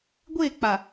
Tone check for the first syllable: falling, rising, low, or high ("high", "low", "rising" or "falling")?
falling